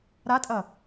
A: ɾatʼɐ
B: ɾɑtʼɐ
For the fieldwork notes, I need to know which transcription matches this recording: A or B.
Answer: A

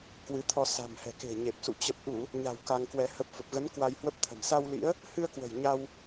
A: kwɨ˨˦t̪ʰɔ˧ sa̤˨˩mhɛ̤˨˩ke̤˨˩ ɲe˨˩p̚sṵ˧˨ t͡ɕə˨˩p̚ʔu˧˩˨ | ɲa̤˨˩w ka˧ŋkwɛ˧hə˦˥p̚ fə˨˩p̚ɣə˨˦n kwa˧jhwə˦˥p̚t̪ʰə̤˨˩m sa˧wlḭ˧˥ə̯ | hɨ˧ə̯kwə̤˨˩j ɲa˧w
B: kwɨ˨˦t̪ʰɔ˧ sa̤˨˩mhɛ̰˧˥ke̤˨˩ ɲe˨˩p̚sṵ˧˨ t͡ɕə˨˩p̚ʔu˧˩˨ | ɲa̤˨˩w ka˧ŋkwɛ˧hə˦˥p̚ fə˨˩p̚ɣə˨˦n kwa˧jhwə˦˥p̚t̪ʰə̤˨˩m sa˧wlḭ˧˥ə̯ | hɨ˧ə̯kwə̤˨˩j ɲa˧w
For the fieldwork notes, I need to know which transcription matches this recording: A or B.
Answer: A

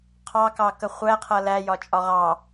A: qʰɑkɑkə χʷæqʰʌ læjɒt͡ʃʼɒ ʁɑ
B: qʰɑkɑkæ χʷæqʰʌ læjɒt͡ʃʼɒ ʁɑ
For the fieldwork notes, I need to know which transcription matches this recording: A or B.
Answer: A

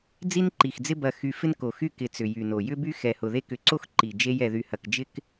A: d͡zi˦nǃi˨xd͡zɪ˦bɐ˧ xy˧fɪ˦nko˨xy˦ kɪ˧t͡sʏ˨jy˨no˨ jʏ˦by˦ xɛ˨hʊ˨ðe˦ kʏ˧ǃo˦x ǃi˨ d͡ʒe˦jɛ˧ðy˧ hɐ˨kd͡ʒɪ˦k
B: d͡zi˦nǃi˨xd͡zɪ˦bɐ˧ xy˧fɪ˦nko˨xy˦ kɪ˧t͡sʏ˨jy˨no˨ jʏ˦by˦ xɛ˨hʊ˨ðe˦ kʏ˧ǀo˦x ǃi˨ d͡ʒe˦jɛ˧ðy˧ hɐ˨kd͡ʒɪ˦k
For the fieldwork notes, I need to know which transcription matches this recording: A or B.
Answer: B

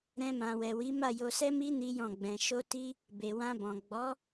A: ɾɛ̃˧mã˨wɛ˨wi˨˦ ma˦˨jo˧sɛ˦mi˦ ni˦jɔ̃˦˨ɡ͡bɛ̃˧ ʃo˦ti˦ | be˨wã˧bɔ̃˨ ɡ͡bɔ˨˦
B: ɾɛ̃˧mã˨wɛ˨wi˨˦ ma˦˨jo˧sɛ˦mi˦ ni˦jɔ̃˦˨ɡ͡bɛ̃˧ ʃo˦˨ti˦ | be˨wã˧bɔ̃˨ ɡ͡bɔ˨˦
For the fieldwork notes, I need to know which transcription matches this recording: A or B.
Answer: A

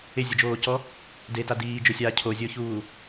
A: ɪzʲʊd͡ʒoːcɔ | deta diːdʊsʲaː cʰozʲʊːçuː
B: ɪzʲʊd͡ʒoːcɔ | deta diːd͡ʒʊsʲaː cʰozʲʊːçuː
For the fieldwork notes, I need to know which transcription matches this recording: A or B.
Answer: B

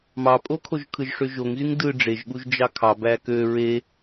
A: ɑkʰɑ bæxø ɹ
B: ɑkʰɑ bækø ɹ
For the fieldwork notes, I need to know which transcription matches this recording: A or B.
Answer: B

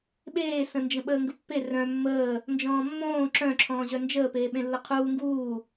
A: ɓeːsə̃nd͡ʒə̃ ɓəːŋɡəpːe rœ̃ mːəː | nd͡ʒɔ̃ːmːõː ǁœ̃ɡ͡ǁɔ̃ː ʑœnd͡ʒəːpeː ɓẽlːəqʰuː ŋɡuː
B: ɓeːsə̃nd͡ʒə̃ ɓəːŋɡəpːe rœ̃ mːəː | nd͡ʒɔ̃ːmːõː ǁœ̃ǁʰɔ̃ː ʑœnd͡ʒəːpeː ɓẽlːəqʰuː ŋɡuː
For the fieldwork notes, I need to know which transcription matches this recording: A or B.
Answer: B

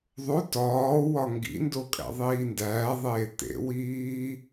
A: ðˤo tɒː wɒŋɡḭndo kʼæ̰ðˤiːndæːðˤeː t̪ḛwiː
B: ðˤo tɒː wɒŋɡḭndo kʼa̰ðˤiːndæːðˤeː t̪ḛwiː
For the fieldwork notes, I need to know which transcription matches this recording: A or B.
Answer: A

